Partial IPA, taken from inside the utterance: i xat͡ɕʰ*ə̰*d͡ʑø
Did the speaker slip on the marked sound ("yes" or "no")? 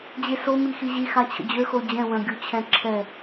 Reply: no